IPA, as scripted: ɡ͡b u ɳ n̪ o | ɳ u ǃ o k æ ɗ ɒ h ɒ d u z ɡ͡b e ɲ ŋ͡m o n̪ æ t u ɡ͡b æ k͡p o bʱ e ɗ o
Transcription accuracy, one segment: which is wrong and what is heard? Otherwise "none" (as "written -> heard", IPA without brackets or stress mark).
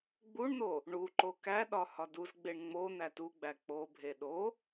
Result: ɲ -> ɳ